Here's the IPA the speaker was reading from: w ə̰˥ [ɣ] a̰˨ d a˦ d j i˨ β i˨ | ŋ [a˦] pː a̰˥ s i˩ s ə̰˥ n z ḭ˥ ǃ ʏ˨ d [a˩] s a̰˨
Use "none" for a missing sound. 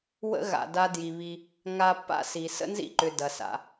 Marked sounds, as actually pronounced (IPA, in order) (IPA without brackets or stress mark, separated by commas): ɣ, a˦, ɐ˩